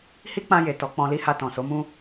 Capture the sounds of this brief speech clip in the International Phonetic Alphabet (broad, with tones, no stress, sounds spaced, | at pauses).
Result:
h i˦ k͡p ã˧ j e˨ t ɔ˨˦ k͡p ɔ̃˧ l i˦ h a˧ t ɔ̃˨ s o˨˦ m ũ˦